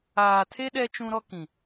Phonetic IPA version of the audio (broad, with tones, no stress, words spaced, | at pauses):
aː˨tʰe˦ ɗɛ˦ t͡ʃũ˦ɾɔ˦kĩ˨